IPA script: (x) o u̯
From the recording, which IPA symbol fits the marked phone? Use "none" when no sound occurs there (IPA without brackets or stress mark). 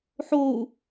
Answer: ħ